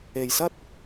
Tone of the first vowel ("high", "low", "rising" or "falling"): low